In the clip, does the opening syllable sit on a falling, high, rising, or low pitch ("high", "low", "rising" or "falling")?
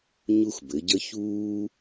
high